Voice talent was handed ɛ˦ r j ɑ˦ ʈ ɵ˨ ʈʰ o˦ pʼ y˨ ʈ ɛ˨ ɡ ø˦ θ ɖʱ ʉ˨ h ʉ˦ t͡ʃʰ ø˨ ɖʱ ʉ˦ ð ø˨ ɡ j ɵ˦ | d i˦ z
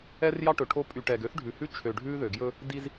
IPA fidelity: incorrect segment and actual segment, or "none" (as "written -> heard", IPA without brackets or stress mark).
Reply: none